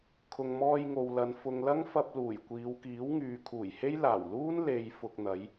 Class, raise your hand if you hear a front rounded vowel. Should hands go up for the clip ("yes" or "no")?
yes